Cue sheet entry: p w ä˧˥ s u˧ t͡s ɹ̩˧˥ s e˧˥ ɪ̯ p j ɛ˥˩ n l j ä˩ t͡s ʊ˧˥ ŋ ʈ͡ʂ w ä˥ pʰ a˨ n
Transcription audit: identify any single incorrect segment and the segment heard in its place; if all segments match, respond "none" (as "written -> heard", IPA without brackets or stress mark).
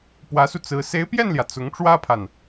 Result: none